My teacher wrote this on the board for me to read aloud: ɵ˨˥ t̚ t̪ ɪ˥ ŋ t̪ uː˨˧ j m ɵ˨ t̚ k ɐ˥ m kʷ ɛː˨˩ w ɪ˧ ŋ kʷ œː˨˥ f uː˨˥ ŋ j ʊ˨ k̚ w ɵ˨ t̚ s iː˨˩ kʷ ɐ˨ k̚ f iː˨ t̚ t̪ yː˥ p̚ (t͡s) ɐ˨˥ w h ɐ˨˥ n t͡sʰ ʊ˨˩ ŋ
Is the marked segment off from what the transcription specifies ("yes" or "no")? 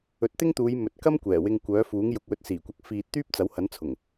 no